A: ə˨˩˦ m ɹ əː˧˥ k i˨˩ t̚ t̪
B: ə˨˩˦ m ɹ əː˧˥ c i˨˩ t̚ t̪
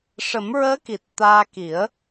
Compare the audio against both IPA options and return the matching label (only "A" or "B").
A